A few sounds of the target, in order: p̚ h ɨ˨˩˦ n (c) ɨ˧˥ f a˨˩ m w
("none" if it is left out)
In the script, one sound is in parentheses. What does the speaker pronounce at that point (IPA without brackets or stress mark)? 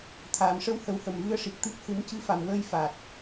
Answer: c